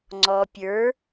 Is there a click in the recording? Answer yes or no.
yes